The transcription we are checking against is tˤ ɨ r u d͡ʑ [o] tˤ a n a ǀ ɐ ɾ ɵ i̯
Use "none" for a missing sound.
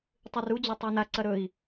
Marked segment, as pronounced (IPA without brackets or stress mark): o